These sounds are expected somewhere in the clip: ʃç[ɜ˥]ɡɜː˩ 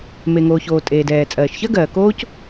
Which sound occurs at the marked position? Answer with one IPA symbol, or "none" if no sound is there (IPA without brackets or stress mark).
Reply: ɜ˥